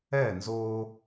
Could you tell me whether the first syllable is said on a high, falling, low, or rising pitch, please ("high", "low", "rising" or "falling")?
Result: falling